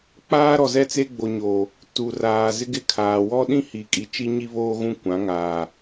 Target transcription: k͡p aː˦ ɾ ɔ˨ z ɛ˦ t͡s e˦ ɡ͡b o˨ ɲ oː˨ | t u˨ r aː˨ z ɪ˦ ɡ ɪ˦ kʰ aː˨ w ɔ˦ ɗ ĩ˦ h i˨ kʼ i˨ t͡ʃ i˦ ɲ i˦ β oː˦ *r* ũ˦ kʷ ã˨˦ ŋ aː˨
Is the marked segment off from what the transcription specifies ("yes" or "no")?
yes